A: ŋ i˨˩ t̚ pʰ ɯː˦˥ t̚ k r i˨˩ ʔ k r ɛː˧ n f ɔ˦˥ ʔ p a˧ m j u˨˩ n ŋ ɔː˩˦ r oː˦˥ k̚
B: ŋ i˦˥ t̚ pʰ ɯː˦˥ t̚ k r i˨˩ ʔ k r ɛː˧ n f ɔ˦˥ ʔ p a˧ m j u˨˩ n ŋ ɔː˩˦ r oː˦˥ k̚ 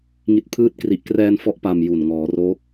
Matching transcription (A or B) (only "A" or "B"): B